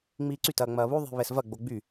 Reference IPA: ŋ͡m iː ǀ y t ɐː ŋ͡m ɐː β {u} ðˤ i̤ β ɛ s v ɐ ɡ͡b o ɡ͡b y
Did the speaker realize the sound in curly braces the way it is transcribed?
yes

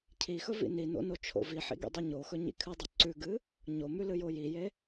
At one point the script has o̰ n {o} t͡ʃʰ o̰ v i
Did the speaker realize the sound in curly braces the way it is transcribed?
yes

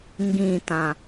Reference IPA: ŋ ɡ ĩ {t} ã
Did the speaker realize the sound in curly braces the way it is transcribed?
yes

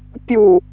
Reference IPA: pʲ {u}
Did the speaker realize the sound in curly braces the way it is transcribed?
yes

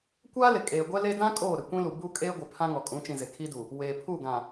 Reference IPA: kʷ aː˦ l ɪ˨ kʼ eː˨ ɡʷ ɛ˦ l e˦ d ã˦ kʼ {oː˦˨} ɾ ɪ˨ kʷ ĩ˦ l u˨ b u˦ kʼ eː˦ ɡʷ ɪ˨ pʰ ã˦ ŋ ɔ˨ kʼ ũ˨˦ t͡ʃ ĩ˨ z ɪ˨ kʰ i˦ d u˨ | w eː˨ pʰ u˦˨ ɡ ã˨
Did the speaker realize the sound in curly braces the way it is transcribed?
yes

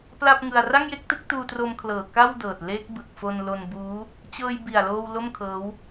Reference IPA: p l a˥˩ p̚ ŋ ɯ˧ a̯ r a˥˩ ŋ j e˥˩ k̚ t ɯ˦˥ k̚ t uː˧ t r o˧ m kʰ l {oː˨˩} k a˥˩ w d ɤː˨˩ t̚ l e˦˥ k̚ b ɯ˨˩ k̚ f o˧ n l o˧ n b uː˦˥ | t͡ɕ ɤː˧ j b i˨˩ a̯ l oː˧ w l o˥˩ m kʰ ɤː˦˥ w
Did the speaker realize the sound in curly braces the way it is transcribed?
no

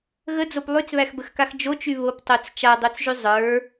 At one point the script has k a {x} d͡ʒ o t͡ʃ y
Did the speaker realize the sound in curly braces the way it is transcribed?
yes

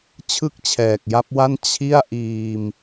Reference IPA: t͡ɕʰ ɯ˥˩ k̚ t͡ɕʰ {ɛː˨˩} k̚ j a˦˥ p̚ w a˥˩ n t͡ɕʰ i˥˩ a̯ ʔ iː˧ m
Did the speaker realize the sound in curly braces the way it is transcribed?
yes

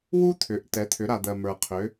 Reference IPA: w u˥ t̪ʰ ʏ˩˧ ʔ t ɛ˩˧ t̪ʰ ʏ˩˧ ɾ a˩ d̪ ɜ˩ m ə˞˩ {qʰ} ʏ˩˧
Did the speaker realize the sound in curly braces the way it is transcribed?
yes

